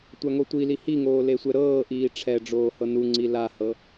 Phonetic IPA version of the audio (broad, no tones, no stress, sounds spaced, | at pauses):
tʷ a ŋ o tʷ i l i h i ŋ oː l e sʷ ɛ ɾ ɤː ʔ iː ʈ͡ʂʰ ɛ ɖ͡ʐ oː h ɤ n u ŋ͡ǀ i l a h ɤ